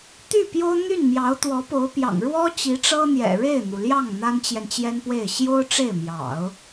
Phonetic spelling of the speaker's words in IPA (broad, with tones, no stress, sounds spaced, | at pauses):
t̪ y˥˩ p j o˥ ʊ̯ n̪ y˥˩ n m j ɑ˧˥ ʊ̯ t̪ w ɔ˧˥ p o˧˥ ʊ̯ p j ɑ̰˨˩ ŋ ɻ w ɔ˥ t͡ɕ i˧˥ ʈ͡ʂ ɤ˥ n̪ j ɛ̰˨˩ ɻ e˥˩ ɪ̯ n̪ u˩ l j ɑ˥˩ ŋ n̪ a˥ n t͡ɕ j ɛ˨ n t͡ɕ j ɛ˥ n p w e˥˩ ɪ̯ ɕ j o˥ ʊ̯ ʈ͡ʂ e˥˩ ɪ̯ m j ɑ̰˨˩˦ ʊ̯